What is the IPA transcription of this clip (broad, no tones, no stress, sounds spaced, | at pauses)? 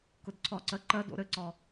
k ʊ d ǀʰ ɒ ǀ ɜ ǃ ɜ d o̰ ɾ ɘ ǀ ɒ